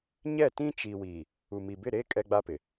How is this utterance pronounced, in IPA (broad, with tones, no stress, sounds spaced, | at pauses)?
ɲ ɛ˦˨ t ĩ˦ t͡ʃ i˨ w i˨ | u˨ m i˨ b ɪ˦˨ ɾ e˦ kʼ ɛ˦ ɡ͡b a˦ p ɪ˨